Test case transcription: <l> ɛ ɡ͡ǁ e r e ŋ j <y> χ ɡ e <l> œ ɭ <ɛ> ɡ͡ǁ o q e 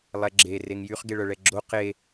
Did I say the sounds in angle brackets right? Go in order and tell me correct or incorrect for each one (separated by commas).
incorrect, correct, incorrect, correct